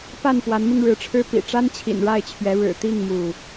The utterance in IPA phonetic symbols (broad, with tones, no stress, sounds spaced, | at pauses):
p a˥˨ n p w a˨˦ n m i˧ ŋ ɻ ɻ̩˨˦ ʈ͡ʂʰ ɻ̩˦ p ḭ˨˩ ʈ͡ʂ a˦ n t͡ɕʰ ḭ˨˩ n ɻ a˥˨ ɪ̯ t͡ɕʰ ɥ ɛ˨˦ ɻ ɻ̩˨˩ t̪ i˥˨ ŋ m u˥˨